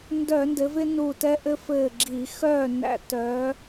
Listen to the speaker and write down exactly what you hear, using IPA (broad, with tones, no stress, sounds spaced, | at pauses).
n d œ˧˩˧ n d ɘ˩˧ v ɪ˦ n u˧˩ t ɛ˦ ʔ ɘ˦ f ɘː˧˩ ɡ͡ǁ i˧˩˧ x œː˥˨ n æ̰˦ t œ˨˥